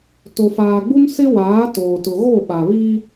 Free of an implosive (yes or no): no